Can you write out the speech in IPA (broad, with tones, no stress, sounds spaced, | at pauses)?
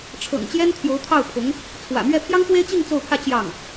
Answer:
ʈ͡ʂʰ ɤ̰˨˩ ŋ t͡ɕ j ɛ˥ n t̪ʰ j o˧˥ ʊ̯ t̪ʰ ɑ˥˩ ʊ̯ pʰ ʊ˧˥ ŋ | t͡sʰ w ä̰˨˩ m ɥ ɛ˥˩ pʰ j ɑ˥ ŋ f w e˥ ɪ̯ t͡ɕ i˥˧ ŋ t͡s o˥˧ ʊ̯ pʰ ä˥˧ t͡ɕ j ɑ˥˩ ŋ